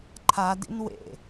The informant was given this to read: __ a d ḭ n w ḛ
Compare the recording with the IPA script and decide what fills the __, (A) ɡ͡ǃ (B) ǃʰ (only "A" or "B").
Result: B